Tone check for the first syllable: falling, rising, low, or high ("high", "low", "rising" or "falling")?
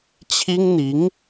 high